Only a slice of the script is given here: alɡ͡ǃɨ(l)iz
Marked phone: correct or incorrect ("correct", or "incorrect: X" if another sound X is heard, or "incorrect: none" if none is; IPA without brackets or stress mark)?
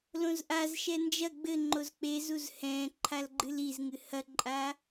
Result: correct